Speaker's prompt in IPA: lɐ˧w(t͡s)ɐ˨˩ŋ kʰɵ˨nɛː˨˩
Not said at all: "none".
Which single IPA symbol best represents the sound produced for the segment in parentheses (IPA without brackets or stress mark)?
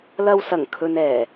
s